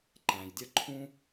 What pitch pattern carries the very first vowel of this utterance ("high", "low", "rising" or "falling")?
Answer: low